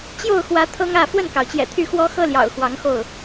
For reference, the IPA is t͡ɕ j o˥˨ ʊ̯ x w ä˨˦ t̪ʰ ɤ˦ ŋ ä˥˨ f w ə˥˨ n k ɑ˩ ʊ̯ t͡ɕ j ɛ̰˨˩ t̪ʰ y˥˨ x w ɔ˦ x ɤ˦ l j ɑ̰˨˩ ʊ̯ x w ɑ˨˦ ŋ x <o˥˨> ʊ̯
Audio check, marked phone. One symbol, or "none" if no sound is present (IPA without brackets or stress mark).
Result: o˥˨